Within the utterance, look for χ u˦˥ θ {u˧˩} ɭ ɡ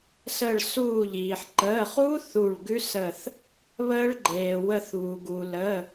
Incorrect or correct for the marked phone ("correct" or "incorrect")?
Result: correct